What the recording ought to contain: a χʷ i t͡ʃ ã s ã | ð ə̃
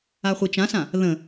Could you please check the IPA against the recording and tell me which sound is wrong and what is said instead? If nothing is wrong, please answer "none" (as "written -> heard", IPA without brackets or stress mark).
none